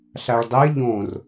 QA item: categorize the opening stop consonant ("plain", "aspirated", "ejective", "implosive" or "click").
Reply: plain